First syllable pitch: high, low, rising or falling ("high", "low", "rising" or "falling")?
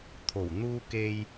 low